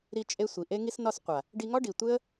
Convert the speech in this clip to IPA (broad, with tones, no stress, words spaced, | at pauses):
ɾi˧t͡ʃʼe˧ sʷi˨ʔe˦ ŋi˧snɒ˧sqʷa˨ | ɖi˧ŋɒ˦ɖi˨ tʷe˦ə̯